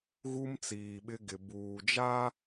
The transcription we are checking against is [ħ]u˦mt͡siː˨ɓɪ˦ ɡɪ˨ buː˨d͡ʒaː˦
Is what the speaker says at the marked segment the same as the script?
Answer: no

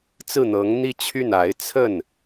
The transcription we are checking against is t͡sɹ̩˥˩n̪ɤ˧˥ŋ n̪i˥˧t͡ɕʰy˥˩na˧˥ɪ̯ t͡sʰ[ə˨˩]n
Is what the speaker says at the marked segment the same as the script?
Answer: no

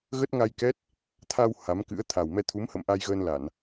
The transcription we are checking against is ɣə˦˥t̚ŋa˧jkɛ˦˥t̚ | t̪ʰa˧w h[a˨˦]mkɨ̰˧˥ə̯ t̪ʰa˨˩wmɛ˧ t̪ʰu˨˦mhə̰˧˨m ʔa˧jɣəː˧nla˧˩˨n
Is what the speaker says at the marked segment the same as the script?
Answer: yes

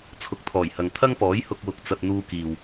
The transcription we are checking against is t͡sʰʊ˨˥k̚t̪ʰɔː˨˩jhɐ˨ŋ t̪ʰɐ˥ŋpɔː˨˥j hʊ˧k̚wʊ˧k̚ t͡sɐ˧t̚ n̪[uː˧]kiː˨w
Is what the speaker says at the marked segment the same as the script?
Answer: yes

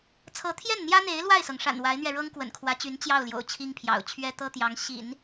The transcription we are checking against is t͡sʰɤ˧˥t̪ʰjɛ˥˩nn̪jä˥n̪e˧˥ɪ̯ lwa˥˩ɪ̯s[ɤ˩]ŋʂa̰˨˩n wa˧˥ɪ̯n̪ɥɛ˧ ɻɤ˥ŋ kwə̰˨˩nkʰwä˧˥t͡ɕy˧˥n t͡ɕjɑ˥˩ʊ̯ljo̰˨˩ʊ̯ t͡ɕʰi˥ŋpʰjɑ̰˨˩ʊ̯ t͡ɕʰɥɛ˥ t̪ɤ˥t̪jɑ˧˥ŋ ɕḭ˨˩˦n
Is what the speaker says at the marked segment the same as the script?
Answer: yes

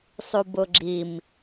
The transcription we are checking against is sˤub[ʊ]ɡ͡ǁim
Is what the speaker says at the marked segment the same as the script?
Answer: yes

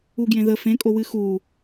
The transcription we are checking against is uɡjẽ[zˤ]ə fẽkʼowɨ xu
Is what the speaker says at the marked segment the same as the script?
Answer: no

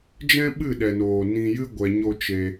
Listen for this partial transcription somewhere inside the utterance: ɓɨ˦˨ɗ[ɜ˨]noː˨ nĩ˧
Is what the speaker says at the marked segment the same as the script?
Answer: no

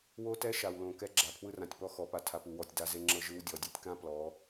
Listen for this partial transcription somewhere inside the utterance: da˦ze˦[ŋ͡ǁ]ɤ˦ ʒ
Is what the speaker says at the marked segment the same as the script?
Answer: yes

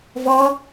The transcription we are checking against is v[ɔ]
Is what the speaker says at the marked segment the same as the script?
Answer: yes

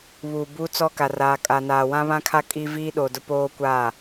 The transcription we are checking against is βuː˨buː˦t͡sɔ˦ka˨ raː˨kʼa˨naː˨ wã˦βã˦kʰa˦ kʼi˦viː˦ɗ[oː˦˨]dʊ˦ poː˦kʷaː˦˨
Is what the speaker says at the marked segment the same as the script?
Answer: no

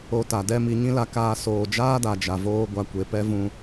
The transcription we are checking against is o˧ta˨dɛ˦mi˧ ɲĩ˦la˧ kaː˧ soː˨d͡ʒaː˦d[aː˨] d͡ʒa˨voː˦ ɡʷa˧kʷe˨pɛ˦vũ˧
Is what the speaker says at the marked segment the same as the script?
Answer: no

